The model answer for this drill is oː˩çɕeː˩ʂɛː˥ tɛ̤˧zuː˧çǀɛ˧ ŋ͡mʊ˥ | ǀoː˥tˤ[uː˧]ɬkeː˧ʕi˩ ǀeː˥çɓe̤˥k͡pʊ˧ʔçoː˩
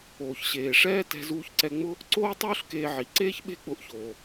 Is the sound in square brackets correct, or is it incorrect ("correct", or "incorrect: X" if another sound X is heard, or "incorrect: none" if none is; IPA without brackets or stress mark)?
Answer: incorrect: uː˥